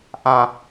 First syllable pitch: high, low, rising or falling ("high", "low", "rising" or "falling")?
low